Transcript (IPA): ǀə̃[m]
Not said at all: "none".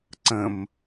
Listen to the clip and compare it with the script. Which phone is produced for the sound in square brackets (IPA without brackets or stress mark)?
m